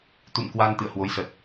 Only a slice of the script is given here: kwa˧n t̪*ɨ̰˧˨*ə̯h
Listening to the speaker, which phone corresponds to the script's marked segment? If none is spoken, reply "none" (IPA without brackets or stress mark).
ɨ̰˧˨